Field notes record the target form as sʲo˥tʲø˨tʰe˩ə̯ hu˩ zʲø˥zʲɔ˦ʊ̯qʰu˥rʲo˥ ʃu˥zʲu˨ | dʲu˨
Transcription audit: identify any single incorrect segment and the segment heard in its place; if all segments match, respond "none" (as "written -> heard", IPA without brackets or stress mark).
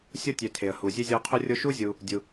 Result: none